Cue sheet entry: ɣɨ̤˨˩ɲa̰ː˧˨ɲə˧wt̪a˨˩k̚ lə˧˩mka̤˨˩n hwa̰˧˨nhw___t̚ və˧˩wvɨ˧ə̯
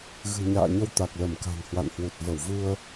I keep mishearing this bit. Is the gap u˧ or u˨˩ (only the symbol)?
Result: u˨˩